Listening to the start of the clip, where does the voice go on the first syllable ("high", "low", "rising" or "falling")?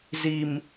low